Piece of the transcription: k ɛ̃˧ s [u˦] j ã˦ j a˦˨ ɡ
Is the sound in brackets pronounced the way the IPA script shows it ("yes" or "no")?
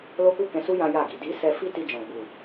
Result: yes